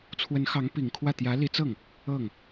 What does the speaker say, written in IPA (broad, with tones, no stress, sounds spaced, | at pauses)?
t͡sʰ w ə˧˥ n x ɑ˧˥ ŋ p i˨˩ ŋ kʰ w ä˥˩ t̪ j ä˧˥ l i˧˥ t͡s ɤ˥˩ ŋ | ɤ˥˩ ŋ